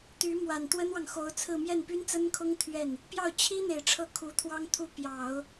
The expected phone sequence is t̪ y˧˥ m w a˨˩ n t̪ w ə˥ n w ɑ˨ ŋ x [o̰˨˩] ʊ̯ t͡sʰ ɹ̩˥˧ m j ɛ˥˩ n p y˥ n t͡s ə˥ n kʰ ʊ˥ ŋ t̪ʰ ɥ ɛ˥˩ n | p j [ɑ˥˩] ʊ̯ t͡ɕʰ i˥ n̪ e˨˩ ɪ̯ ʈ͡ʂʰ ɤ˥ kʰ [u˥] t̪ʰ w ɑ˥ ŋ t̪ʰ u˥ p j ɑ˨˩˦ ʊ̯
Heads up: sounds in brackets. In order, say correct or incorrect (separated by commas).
incorrect, correct, incorrect